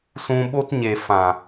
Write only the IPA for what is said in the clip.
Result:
s ũ˧ ɓ o˦ t ɲ e˨ f ã˨

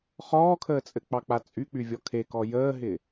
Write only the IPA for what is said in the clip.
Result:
χ ɔː kʰ əː t͡sʼ ɘ k͡p ɑ k͡p a t͡sʼ y k͡p y vʲ ɔ kʰ e k ɔ j əː ɦ ɪ

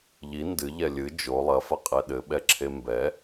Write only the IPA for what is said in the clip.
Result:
ʎ i n d ɨ ʎ ɛ lʲ ɨ d͡ʒ o lˠ ɐ f ɐ qʼ ɛ ɗ ɘ ɓ ɛ ǁʰ e m b ɛ

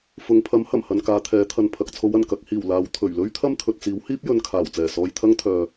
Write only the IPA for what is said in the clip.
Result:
f ʊ˨ ŋ pʰ ɐ˨˥ m h ɐ˨˩ m h ɐ˨ n k aː˨˧ t̪ʰ ɛː˨˥ t̪ʰ ɐ˧ n pʰ ɐ˨ k̚ t͡sʰ o˨˥ w ɐ˨˩ n k ɐ˨ k̚ h iː˨˩ w l aː˨˧ w t̪ʰ ɵ˨˩ ɥ l ɵ˥ ɥ t̪ʰ ɐ˥ m t̪ʰ ɵ˨ t̚ t͡s iː˨˥ w h iː˥ p̚ j ɵ˨˧ n kʰ aː˨˩ w t͡s ɛː˨˩ s ɔː˧ j t̪ʰ ɐ˥ ŋ t̪ʰ œː˨

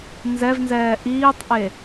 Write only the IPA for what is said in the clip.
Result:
n z ɛ v n z ɛː ʔ iː tˤ ʔ e

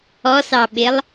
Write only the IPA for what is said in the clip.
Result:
ɔ s ɑ ɓ ɪ lˠ

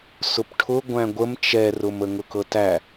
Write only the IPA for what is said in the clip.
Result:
s ʊ p ʈʰ ʊ ɡʷ æ̃ ɡʷ ə m t͡ʃ ɛ r ʊ m ə ŋ ʊ k ɤ t æ

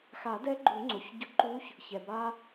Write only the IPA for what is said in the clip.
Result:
x a˨˩˦ d ɛ˧˥ ɡ͡ǃ u˨˩˦ ŋ͡ǀ o˩˧˩ ç ɟ ʊ˧ ǃ u˧˥ ç | ç ɛ˩ b a˧

